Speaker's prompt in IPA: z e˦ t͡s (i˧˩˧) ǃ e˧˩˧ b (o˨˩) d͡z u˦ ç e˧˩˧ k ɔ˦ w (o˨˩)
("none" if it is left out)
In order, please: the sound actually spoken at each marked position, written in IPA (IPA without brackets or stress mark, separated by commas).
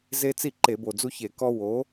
i˥˩, o˨˩, o˩˥